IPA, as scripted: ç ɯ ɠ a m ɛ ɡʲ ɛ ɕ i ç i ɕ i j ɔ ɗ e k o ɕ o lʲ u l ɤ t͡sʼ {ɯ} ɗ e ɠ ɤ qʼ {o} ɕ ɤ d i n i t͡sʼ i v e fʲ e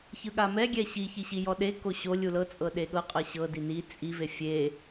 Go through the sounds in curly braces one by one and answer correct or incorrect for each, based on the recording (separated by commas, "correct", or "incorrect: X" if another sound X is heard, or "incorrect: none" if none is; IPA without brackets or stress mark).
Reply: incorrect: ɤ, incorrect: ɤ